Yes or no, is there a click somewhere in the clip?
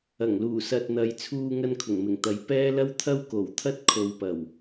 no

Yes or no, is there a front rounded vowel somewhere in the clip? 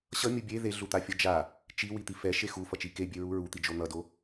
no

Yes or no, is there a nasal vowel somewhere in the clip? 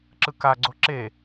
no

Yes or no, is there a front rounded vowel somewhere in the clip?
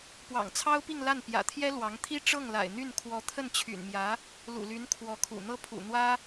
yes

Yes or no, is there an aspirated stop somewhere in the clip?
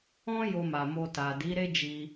no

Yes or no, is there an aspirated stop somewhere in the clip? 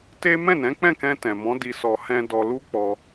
no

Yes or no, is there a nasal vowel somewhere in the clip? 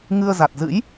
no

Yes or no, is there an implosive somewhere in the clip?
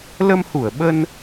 yes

